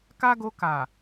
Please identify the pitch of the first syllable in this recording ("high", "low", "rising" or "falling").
high